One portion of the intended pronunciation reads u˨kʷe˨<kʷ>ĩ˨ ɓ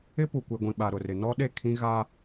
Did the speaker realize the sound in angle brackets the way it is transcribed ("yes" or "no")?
no